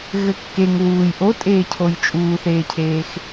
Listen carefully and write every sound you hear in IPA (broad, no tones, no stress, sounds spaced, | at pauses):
ɣ ɘ kː e ŋ w uː j ʔ o tʼ eː cʰ o j t͡ʃʼ uː θ eː cʰ eː x